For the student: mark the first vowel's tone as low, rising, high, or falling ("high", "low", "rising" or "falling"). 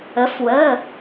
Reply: rising